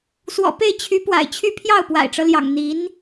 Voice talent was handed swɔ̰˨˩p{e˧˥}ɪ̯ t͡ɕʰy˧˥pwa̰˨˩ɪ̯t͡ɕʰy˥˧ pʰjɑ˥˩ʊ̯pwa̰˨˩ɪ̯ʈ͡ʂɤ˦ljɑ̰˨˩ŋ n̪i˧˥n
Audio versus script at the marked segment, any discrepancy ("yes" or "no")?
yes